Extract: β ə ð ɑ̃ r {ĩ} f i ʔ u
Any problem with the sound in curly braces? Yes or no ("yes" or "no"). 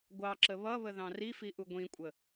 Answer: yes